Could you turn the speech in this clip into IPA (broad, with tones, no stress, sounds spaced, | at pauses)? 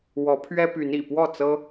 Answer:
w ɔ˨˦ pʰ ɥ ɛ˦ p y˨˦ n ḭ˨˩ p w ɔ˥˨ t͡s ɤ˦